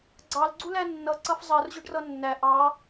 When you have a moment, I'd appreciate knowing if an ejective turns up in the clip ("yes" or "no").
no